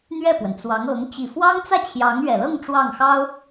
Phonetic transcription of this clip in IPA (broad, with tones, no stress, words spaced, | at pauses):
n̪ɥɛ˥˩pwə˩nt͡swɑ˧˥ŋɤ˧˥ŋ t͡ɕi˨˩fwɑ˥ŋt͡sä˥˩ t͡ɕʰjɑ˧˥ŋɥɛ˨˩lɤ˥˧ŋ ʈ͡ʂwɑ˥˩ŋxɑ˥ʊ̯